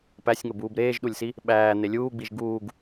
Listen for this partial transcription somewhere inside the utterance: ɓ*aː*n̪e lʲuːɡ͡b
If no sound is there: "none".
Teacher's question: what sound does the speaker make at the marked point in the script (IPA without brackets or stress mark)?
æː